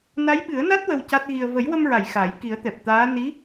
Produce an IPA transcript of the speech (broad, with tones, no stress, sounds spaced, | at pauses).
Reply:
n a˧˥ j ɓ ɨ˨˩˦ ə̯ n a˦˥ t̚ w ə˧ w c a˦˥ t̚ ɣ i˧ ə̯ v ə˨˩˦ j w ə˧ m ɹ a˨˩˨ j x a˨˩˦ j k i˨˩˦ ə̯ t̪ ɛ˨˩ p̚ t̪ aː˧˥ n i˧˥